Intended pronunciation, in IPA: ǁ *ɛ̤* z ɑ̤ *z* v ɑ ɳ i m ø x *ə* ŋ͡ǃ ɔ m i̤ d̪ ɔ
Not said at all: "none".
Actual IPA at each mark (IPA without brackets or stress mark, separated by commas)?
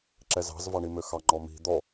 ɛ, z, ɑ